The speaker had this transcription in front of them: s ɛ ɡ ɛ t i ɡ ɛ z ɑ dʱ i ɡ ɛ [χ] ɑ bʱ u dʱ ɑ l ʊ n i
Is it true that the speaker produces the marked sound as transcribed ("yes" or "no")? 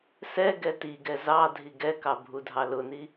no